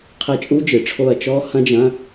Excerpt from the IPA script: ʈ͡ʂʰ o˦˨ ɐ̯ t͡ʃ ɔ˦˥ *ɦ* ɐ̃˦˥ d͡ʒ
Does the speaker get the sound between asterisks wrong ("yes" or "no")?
yes